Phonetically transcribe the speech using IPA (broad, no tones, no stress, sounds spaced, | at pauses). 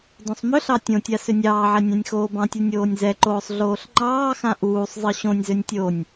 d õ sˤ m ʏ ɬ ɑ tʲ õ tʲ a s ʏ nʲ ɑː ʕ ɛ nʲ ɑ̃ nʲ x oː b ɑ̃ tʲ u nʲ oː nʲ z ɛ ǃ oː sˤ ɮ oː ɬ ŋ͡ǃ ɑː x ã ʔ uː sˤ zˤ ɯ ɕ õ nʲ z ø nʲ tʲ o nʲ